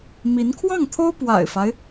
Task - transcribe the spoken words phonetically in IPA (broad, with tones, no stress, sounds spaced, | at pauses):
m i˧˥ n kʰ w ɑ˥˩ ŋ t̪ʰ o˥ ʊ̯ p w a̰˨˩ ɪ̯ f a˦ ɪ̯